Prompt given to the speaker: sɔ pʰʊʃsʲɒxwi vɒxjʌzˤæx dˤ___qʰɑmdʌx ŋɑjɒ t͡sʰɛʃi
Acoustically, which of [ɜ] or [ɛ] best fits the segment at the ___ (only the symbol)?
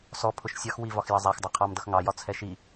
ɜ